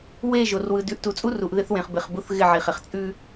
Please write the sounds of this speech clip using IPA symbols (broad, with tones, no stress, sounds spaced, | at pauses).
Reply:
w e˦˨ ʒ o˨ r w ɯ˨ d ʉ˨ ʔ t u˨ t͡sʼ u˦ r u˨ ʔ ð ɪ˦ θ w ẽ˨ χ b ɪ˨ χ b u˦ θ ɣ ɪ˦˨ ʕ i˨ χ ɪ˨ χ t͡sʼ ʉ˦